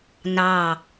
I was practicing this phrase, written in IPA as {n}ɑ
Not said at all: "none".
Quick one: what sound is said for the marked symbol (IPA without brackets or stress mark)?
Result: n